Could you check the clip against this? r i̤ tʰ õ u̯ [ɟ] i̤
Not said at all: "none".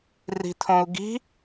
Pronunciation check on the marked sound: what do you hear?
ɡ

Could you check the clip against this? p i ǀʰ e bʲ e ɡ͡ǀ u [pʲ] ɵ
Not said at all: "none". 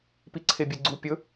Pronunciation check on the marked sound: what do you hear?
pʲ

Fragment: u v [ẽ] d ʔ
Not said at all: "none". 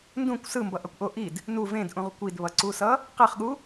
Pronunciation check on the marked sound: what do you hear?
ẽ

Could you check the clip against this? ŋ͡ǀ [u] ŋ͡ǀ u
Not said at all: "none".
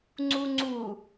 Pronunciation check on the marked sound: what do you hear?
u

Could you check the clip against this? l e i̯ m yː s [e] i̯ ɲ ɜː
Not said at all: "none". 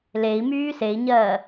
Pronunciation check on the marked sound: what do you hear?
e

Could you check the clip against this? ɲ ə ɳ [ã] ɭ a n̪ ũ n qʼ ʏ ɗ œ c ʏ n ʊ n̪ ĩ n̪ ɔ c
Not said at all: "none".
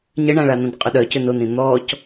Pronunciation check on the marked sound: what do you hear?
ã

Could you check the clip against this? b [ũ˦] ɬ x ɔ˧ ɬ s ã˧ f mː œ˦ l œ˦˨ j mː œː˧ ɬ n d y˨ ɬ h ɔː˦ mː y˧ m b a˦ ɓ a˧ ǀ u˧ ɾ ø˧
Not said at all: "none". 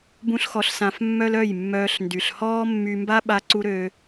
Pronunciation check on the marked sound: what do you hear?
ũ˦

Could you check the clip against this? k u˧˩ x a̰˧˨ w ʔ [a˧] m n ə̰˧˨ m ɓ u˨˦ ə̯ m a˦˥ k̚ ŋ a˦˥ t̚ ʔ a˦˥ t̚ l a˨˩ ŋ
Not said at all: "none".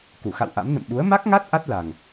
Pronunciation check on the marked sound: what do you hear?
a̰˧˥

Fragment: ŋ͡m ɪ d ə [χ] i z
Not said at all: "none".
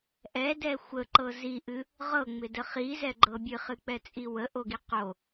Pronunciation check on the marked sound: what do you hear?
χ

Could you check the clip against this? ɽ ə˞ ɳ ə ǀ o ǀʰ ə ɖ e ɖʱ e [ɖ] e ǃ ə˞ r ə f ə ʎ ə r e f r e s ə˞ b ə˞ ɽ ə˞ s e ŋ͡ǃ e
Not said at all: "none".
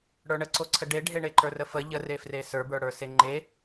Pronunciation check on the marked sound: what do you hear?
ɳ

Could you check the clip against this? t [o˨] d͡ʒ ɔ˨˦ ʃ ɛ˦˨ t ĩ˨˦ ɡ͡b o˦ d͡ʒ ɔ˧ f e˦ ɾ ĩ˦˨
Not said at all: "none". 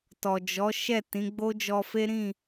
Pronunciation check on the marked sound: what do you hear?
ɔ˨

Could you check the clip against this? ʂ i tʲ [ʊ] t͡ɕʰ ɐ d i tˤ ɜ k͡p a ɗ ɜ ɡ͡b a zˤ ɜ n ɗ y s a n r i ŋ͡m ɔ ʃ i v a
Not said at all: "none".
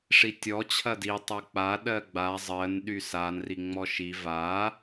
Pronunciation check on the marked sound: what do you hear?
ɔ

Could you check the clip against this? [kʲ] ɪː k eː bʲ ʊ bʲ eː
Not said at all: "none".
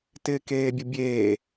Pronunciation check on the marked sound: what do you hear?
t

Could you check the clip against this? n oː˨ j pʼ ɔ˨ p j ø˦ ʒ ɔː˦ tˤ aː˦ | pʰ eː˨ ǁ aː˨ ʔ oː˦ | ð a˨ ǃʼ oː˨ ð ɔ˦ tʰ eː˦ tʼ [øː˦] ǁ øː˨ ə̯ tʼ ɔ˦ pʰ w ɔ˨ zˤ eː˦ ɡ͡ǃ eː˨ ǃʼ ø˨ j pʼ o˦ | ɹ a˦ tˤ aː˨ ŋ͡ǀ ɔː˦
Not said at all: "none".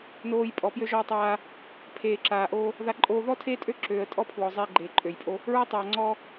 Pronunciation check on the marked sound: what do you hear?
ø˦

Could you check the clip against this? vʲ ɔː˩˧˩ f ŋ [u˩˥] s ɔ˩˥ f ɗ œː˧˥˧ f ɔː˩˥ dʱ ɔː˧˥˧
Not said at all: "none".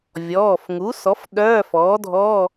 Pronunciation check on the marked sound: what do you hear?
u˩˥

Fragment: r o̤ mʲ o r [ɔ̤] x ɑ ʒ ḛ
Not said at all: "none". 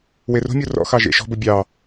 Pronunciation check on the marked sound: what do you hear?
ɔ̰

